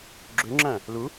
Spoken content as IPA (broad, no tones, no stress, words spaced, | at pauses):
ɡ͡ǁøŋ͡ǁæ̃ | lu